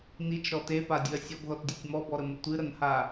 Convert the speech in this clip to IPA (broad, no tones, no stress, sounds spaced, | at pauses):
n i t͡ʃ ɾ ɔ t e p a dʲ ɨ ɐ̯ sʲ ɔ ɡ ð ɔ t dʲ e tʲ m ɔ b ɔ ɾ ə m ə tʷ ɨ ɾ ə n h a